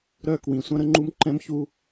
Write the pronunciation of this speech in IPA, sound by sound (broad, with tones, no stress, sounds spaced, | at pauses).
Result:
ɾ œ˦˨ k w ĩ˨ sʷ œ̃˦ ɾ ə˦ ŋ͡ǃ u˦ m ǃ ɛ̃˦ m ç u˦